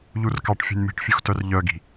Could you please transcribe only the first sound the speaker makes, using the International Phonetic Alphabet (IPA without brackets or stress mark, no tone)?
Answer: ʎ